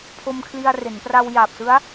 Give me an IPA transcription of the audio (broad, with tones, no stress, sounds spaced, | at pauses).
pʰ o˧ m kʰ l i˧ a̯ r e˩˦ n p r a˧ w j a˨˩ p̚ s ɯ˦˥ a̯